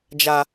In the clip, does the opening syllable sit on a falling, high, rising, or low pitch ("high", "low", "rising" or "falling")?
high